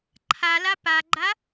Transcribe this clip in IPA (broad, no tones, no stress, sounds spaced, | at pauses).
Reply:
ǃʰ a l a p a ɡ͡ǃ a